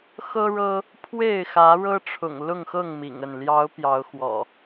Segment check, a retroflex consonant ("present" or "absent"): present